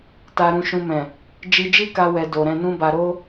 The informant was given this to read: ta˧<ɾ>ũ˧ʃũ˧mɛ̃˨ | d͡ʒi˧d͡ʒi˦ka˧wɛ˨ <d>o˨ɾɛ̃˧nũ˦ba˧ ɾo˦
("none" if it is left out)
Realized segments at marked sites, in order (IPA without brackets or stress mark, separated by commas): ɾ, d